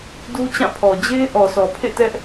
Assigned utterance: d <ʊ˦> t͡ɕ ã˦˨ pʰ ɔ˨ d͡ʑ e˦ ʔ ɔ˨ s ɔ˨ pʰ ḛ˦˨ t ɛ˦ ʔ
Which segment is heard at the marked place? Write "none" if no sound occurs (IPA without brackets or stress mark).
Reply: u˦